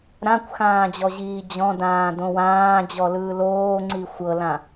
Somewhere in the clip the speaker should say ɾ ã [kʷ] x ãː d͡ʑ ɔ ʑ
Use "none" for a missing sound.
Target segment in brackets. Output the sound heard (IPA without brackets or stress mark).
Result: kʷ